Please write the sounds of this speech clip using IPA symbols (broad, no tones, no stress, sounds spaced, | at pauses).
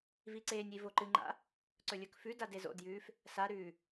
v i ǀ eː nʲ i v o ǃ ɨ ŋ͡ǃ a̰ | ǀ ɵ lʲ ɵ k f ʉ d a d e z o̰ d j ʉː f | s a ɾ ʉː